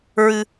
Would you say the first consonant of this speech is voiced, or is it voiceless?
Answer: voiced